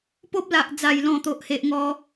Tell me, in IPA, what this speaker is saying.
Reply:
po˦p̚ la˨ʔd͡za˨˩jlɔ̃˨˩ t̪o˨ʔhe˨ʔ ŋɔ˦

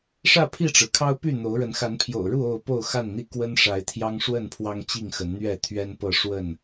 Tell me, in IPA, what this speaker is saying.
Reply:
ʂä˥˨pʰi˥˨ʈ͡ʂɻ̩˩kʰɑ˦ʊ̯ py˥˨n̪o˨˦ʊ̯ɻə˨˦n xa˨˦npʰjo̰˨˩ʊ̯ɻu˥˨ o˥˨ʊ̯po˥˨ʊ̯xa˥˨nn̪i˥˨ kwə˦nʂa˨˦ɪ̯t̪ʰjɑ˦ŋ ʂwə˥˨npʰwɑ˦ŋ t͡ɕi˥˨ŋxə˨˦nn̪ɥɛ˥˨ t̪ʰɥɛ˦npɤ˥˨ ʂwə˥˨n

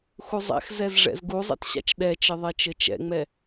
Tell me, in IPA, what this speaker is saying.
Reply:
xuzˤɛ̰xzɛz ʐɛ̰zɡuzˤɛ̰t ɕa̰t͡ʃɗɛt͡ʃɘ ðˤɛt͡ʃɘt͡ʃɛ̰ŋ͡mɛ

